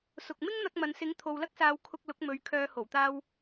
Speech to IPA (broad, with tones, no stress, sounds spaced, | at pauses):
s ʊ˨ k̚ m ɪ˥ ŋ n̪ ɐ˧ k̚ m ɐ˨ n s ɪ˨˥ ŋ t̪ʰ o˨ w l ɐ˥ k̚ s aː˨˧ w kʰ ʊ˧ k̚ l ʊ˨˥ k̚ m ɵ˨ ɥ kʰ œː˨˧ h o˨˩ w t̪ aː˧ w